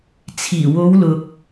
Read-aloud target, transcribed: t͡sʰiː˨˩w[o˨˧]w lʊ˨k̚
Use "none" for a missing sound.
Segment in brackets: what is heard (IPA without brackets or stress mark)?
o˨˧